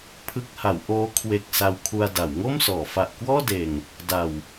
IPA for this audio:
pʰ ɯ˦˥ k̚ h a˩˦ w ʔ oː˦˥ kʰ w e˨˩ k̚ s a˧ w kʰ u˧ a̯ d a˩˦ w ŋ o˥˩ m s ɔː˩˦ f a˨˩ ʔ k w ɔː˥˩ d eː˨˩ ŋ | d a˨˩ w

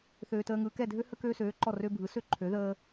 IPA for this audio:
θ øː˦ t əː˦ ŋ ɯː˦ k ɛ˦˨ dʱ ø˦ h ə˦ k øː˦ s øː˨˥ ǃ ɔ˦˨ r ø˦ bʱ ɯ˨˥ s ø˦ ǃʰ ø˨˥ ð əː˦

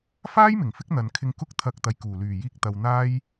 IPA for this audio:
f aː˥ j m ɪ˨˩ ŋ f ɪ˥ k̚ n̪ ɐ˨ n kʰ ɪ˧ ŋ k ʊ˥ k̚ t̪ʰ ɐ˧ k̚ t̪ ɐ˨ j k uː˨˩ l yː˨˩ j iː˧ k̚ t̪ ɐ˨ w n̪ aː˥ j

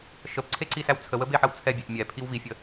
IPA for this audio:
ʃ ə p ǀʰ e ǀ i s æ w t͡sʰ ə w ə b e ħ ə w t͡sʰ ɛ bʲ e ʔ mʲ ɛ pʰ i w v i fʲ ə

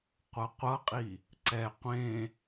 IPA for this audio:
qʷ ʌ qʷ ʌ qʼ i | ǀ ɛ qʷ ẽ

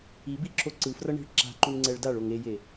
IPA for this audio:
i b i ǁʰ o ǀ ɯ f r ʌ ɳ i̤ ɭ ǁ a̤ ǃ u n ŋ͡ǀ ɛ ɭ d a ɭ o ŋ e j e

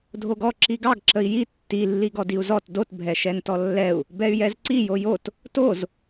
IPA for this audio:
dʱ o ɡ ɔ ǁ i ɡ ɑ ɡ ǁ ə i̯ j i tː i lː i ɡ ɔ d i u̯ z ɔ t d o t bʱ ɛ ʃ ɛ n t ɔ lː ɛ u̯ | b ɛ y̯ j ɛ z ǀ i j o j o t | t o z

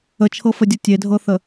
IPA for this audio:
ə t͡ʃʰ ɤ f ə dʲ ɤ tʲ e dʱ ɤ θ ə

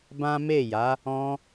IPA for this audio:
b ã˦ m e˦˨ j a˨˦ | ɔ̃˧

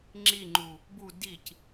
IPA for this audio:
ŋ͡ǁ i ŋ͡ǃ u | b u d i c

